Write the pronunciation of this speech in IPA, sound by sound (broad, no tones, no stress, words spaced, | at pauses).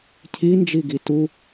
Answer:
cʰind͡ʒiɡi tu